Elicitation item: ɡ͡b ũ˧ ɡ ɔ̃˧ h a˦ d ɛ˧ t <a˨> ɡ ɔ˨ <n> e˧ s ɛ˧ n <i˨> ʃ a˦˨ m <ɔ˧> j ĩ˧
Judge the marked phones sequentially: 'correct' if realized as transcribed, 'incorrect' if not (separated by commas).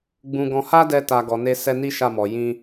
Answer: correct, correct, incorrect, incorrect